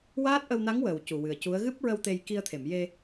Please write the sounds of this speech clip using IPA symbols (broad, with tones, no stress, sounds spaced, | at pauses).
w aː˦˥ t̚ ʔ ə˧ w n a˧˥ ŋ w əː˨˩ w c u˨˩ w ɨ˨˩ ə̯ c u˧˥ ə̯ ɣ ɨ˦˥ p̚ ɹ ə˧ w t̪ e˧ j k i˧ ə̯ t̪ʰ e˨˩˨ m j e˧